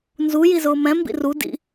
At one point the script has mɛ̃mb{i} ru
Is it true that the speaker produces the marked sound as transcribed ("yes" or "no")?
no